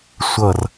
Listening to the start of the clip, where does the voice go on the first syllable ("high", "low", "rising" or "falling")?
falling